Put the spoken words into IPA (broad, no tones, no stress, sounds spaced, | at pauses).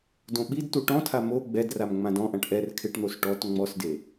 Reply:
d õ ɓ i d t u ʈ ɔ̃ tʰ a m o ɡ͡b ɛ d r a m ŋ͡m ã d ɔ̃ ʔ ã ʈ ʔ ɛ r kʰ ɪ ʈ n̪ o s ʈ ɔ t ŋ͡m ɔ s d e